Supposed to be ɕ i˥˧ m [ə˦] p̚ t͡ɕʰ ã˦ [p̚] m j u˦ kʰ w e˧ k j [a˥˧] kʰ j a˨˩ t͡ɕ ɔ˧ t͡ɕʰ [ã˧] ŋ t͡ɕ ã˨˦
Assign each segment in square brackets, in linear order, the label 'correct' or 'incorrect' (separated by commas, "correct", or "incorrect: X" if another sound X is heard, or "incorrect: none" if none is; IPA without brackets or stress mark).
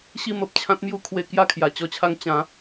incorrect: ə˨, incorrect: t̚, correct, incorrect: a˧